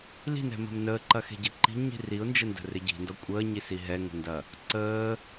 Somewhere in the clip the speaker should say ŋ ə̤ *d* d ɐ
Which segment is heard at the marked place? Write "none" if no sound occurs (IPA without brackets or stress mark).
n